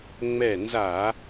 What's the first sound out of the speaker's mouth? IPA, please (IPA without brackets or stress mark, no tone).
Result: ŋ͡m